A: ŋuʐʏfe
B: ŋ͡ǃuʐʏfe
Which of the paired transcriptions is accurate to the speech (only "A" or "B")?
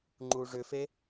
B